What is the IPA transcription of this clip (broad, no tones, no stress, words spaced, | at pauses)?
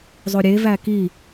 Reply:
zˤoɾʲe væki